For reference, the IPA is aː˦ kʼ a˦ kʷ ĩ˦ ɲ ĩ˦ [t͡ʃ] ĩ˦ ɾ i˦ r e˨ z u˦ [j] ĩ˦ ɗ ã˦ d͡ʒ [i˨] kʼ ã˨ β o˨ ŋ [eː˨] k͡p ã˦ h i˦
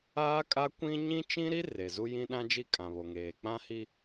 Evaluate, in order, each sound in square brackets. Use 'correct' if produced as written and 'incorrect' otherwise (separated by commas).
correct, correct, incorrect, correct